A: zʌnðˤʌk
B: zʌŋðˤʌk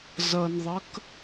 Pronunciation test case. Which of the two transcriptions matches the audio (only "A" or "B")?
A